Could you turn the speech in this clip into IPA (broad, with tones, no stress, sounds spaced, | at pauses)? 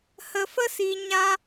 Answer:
h ə˧ f ə˦ s i˧ ɲ ã˦